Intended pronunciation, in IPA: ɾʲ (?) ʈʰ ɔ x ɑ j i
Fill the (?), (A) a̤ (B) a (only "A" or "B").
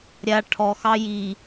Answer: B